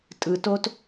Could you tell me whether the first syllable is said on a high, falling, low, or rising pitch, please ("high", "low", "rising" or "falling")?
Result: low